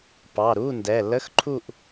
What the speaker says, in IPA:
p ɑ˩˧˩ ɾ u˧˥˧ n d ɛ˩˧˩ l ə˧˥˧ x ǃʰ u˥˧ ʔ

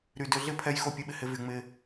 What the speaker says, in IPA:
ɾ y˨ d ø˧ ɮ ɪ˦ pʰ ɛ˧ j x o˧ pʲ ʊ˨˦ ɓ ɪ˨ h ɪ˧ v y˨ ŋ͡m ɪ˧

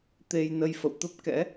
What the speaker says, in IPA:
t̪ e˧ j n ə˧ j f ə̰˧˨ w t̪ ə˦˥ p̚ k ɛ̰˧˥

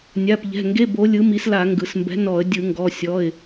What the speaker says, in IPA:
nʲ a˩˧˩ p ʎ ɛ̤˩˧˩ ŋ ɡ e˧˥˧ b o˨˥ lʲ ɯ˨˥ m i˨˥ s l a˧˩˧ ŋ ɡ ɯ˩ s m b ɛ̤˨˥ n ɔ˧˩˧ ə̯ dʲ ɯ˧˩˧ ŋ ɡ ɔ˩˧˩ sʲ ɔ˩˧˩ ɪ̯

